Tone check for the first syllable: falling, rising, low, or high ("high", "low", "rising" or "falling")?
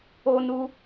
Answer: low